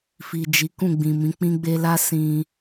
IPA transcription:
f i˨ d͡ʒ i˨˦ k ũ˦˨ ɡ͡b ĩ˨ m ĩ˨˦ k͡p ĩ˧ ɡ͡b e˧ l a˦ s ĩ˧

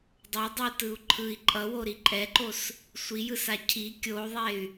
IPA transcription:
dˤ ʌ dˤ u t ɯ u̯ ǃʰ ɯ i̯ ǃʼ ʌ w o ɾ i ǃʼ ɛ ǃ o s | sʷ i j ɯ s a cʰ i kʲ o u̯ ðˤ e y̯

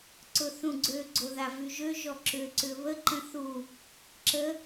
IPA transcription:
ǀ ʊ θ ũ ɡ͡ǀ ø ɡ͡ǀ o ð a v y ʒ ø ʒ ɔ ǁ ʏ ǀ ʏ β ə ǃ ə̃ θ u | ǁ ə

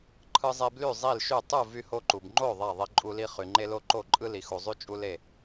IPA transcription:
ǃʰ ɯ˦ zˤ e˦ b l y˥˨ zˤ i˥˨ l ʃ y˥˨ tˤ u˥˨ v y˦ h o˦ ǃ u˨ b ŋ͡ǃ o˥˨ ðˤ æ˥˨ ðˤ e˦ ǃʼ u˦ l i˦ χ y˨ ŋ͡ǃ e˦ l o˦ ǃ o˥˨ ǃʼ ɯ˦ l i˨ x u˨ zˤ y˦ t͡ʃʼ u˦ l e˥˨

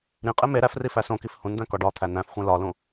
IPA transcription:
ɾ ĩ qʼ e m e ɾ æ f r i f æ s õ k i f h ũ n d̪ æ̃ k ɒ ɖ ɒ t̪ʰ æ n æ̃ f xʷ ẽ l ɒ l ũ

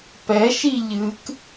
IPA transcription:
p ɛ ʃ i ʎ ɨ k

